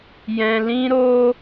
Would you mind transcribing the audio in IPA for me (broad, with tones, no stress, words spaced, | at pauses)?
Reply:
jɛ̃˧lĩ˦ɾo˦